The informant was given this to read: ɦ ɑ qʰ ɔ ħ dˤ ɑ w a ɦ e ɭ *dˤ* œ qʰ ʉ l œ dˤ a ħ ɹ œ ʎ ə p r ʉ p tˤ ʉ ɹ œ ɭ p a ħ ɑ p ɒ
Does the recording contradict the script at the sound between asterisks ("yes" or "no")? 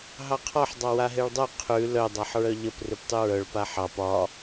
no